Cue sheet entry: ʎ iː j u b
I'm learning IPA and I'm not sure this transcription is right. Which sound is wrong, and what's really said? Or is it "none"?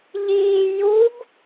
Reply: none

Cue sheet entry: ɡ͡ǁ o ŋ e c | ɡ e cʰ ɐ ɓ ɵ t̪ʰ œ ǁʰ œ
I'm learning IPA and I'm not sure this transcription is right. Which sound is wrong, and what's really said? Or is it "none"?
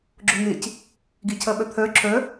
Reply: ɵ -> œ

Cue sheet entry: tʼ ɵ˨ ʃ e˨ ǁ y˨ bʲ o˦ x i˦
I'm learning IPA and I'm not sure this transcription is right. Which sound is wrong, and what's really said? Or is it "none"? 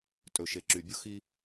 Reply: none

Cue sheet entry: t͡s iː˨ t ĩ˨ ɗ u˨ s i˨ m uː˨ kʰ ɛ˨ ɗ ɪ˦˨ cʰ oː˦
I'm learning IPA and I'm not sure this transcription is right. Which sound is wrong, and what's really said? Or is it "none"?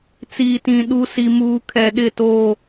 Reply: cʰ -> t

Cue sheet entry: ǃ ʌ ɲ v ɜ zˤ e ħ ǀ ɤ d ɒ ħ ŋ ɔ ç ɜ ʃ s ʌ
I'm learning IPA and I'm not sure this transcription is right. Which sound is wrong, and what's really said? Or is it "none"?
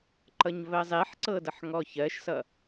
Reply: ɒ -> ʌ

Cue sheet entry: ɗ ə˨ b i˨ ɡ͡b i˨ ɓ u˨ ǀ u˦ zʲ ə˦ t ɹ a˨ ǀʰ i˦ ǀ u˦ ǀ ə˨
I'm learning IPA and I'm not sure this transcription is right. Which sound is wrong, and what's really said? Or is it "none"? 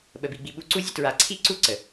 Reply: ɗ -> ɓ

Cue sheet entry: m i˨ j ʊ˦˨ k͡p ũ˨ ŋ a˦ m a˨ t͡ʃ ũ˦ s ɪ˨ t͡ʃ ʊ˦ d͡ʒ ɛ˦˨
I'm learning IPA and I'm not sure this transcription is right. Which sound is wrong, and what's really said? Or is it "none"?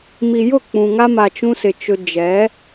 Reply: ɛ˦˨ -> ɛ˨˦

